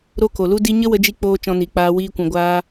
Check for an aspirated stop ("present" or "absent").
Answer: absent